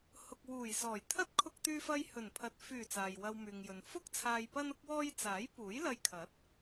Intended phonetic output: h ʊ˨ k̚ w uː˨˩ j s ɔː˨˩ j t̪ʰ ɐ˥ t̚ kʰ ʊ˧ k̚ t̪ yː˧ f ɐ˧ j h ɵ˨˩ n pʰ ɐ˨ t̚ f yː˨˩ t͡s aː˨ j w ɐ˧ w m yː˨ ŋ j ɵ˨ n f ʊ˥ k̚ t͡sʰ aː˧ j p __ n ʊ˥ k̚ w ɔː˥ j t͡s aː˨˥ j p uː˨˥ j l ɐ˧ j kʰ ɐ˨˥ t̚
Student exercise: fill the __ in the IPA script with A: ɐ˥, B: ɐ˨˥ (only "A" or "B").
A